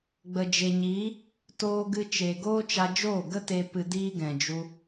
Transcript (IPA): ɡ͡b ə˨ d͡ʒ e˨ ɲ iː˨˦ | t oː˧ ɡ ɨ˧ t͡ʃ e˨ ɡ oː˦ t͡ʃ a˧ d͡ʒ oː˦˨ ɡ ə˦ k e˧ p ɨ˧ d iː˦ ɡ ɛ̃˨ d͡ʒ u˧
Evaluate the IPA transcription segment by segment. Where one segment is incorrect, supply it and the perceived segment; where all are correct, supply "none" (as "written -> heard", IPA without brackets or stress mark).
k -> t